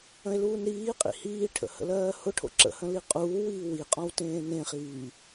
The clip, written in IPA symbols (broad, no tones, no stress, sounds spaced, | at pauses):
ə̃ e̯ l uː n ɾ iː qʼ ḭ h iː ʈʰ ə̰ h ə̰ l ɜː h ʊ ʈʰ o̰ ǁ ə̰ h ə̃ l i qʼ uː w iː w i qʼ ɔ̃ w t ẽː n ẽ χ iː